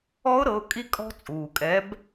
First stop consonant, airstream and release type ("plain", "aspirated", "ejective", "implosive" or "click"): ejective